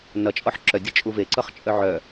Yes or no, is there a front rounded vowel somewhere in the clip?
yes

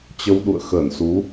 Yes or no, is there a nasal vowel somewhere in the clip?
no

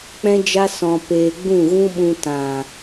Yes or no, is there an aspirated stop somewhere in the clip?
no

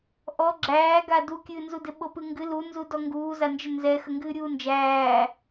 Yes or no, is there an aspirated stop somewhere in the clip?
no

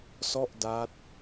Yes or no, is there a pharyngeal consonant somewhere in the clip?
no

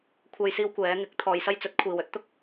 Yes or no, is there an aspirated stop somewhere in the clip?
yes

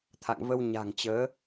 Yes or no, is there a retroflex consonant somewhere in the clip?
no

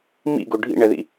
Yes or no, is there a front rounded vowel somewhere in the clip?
no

